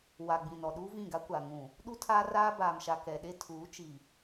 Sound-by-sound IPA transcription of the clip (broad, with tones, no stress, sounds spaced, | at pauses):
w a˨ ɡ͡b ĩ˨ n ɔ˨ ɗ uː˦ v ĩ˦˨ ɡ a˦ kʷ a˨ ŋ ũ˨ | ɗ u˦ tʰ aː˦ r aː˦ b aː˨ m ʃ a˨ k ɛ˨ ɗ e˦ tʰ uː˨˦ t͡ʃ i˨